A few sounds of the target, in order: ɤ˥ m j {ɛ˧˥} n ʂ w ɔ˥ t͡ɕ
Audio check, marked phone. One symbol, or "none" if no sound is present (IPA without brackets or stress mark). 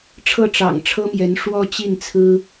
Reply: ɛ˧˥